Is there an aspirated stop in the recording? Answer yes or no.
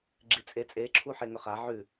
yes